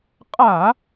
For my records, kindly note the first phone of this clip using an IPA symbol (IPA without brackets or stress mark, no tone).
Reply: qʼ